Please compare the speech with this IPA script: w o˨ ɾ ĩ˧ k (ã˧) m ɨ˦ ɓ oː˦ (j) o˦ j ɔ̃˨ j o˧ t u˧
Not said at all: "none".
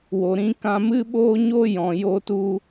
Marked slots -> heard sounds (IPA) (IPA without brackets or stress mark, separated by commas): ã˧, ɲ